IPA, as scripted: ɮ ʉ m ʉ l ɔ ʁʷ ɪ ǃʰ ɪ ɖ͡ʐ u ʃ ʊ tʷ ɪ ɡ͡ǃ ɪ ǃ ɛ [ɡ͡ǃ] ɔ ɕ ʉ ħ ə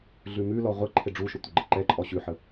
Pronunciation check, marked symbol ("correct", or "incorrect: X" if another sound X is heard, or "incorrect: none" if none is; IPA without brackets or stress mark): incorrect: ǃʼ